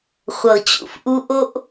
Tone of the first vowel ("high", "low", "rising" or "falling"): low